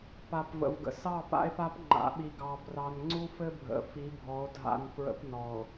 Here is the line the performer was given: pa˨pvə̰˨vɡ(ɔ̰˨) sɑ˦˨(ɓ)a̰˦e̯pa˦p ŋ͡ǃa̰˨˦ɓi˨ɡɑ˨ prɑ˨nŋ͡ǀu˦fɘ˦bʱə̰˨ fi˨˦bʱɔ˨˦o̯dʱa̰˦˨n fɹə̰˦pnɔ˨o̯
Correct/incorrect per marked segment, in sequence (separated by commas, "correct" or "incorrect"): incorrect, incorrect